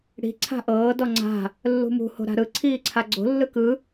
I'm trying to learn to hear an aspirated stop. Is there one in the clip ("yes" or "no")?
yes